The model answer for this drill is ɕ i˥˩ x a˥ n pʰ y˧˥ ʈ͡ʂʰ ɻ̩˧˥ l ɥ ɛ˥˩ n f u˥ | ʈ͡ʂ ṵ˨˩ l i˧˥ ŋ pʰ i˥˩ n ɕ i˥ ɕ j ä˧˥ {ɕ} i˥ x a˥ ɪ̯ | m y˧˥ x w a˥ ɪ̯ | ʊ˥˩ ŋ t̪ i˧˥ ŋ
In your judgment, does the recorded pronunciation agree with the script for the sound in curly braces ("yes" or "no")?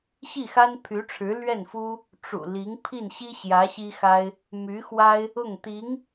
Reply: yes